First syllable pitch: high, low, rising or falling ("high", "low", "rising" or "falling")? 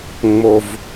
low